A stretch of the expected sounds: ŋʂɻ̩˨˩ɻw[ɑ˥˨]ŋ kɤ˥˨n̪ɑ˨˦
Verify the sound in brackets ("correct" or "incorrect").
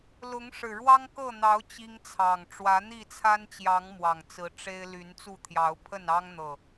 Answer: incorrect